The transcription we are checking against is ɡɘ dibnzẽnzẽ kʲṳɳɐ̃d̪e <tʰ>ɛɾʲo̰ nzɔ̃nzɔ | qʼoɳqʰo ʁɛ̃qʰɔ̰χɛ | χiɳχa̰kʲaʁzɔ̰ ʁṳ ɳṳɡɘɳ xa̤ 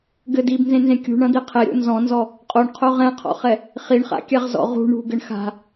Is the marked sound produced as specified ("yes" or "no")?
no